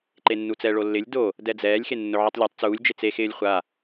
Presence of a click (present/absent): present